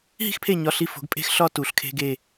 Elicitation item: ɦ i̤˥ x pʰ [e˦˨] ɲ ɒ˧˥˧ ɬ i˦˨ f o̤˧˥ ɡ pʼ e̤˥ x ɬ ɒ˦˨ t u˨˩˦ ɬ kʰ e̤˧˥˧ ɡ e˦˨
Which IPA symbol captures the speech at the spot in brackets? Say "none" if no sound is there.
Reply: e˦˨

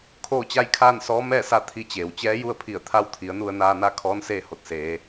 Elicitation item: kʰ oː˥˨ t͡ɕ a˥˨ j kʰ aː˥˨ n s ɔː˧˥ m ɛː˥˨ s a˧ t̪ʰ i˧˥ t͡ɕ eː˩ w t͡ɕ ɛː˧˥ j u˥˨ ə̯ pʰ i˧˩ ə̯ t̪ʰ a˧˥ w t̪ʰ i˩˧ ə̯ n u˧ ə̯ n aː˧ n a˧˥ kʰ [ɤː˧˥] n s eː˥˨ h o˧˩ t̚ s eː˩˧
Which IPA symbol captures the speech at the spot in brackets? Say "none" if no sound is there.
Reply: ɔː˧˥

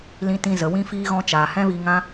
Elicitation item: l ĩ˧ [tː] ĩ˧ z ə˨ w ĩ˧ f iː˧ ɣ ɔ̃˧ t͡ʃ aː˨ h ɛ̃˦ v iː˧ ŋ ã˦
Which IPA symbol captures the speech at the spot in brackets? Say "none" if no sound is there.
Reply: t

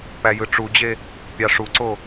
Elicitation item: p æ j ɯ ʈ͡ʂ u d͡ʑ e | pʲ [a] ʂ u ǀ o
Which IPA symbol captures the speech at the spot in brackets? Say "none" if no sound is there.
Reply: ɑ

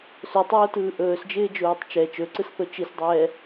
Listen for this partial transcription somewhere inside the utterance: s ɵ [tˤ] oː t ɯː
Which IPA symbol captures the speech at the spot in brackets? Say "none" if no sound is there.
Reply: tˤ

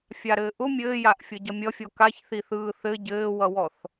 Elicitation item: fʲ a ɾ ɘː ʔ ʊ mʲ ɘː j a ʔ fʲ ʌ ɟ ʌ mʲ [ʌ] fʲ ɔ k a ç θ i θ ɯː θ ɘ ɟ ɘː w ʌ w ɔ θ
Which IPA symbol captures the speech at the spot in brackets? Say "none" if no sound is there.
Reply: ʌ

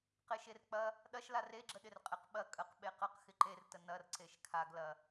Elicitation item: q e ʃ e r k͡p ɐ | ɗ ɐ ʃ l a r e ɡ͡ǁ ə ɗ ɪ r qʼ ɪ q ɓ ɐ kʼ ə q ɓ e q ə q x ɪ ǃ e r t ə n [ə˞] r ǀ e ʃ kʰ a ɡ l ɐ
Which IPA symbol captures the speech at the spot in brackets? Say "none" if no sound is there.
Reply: ɐ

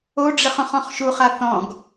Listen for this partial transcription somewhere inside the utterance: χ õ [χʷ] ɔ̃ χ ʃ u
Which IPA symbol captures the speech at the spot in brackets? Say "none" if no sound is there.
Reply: χ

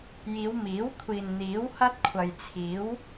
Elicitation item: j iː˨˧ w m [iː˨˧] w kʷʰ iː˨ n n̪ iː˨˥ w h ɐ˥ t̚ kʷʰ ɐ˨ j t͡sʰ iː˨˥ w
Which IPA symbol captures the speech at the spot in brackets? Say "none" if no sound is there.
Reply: iː˨˥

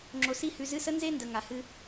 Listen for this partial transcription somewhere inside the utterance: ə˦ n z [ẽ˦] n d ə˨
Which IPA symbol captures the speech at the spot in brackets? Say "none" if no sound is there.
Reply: e˦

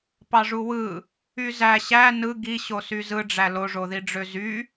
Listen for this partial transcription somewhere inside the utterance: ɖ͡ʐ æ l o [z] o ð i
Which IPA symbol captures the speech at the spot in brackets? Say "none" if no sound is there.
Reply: ʐ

